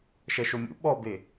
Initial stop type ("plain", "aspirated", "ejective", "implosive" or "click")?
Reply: implosive